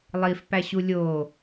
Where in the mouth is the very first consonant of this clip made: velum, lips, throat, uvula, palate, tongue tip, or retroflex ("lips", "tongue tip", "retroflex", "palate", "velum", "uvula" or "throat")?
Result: tongue tip